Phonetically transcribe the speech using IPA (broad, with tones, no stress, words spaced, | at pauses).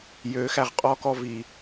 jøː˩˧xæ˩ʁ qʼɔː˧kɔ˧ vi˩